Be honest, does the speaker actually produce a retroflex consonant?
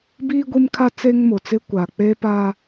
no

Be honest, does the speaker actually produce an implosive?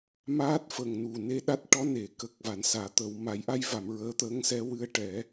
yes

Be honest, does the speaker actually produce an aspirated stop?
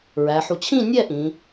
yes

